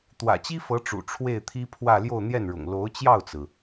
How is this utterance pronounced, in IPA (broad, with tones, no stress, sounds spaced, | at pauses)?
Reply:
t̪ w ä̰˨˩ t͡ɕ i˥ f ɤ˧˥ ʈ͡ʂ ṵ˨˩ ʈ͡ʂʰ w e˥˩ ɪ̯ t̪ʰ i˥ pʰ w ä˥˧ l j o˥˧ ʊ̯ n̪ j ɛ˥˩ n ɻ ʊ̰˨˩ ŋ l o˧˥ ʊ̯ t͡ɕ j ɑ˥˩ ʊ̯ t͡s ɹ̩˩